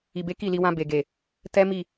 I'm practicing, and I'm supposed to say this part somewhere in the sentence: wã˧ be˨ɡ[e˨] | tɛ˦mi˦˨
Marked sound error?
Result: no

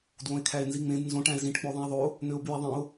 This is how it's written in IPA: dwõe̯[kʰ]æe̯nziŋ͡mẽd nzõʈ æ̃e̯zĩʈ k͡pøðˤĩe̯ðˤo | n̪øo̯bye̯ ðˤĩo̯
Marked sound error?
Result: no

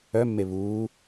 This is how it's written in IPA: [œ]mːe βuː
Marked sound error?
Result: no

